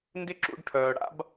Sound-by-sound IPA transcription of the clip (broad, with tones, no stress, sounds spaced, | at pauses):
n d ɪ˦ ǁ ṵ˧ ɖ ʈʰ œː˨ ɽ a̰˦ b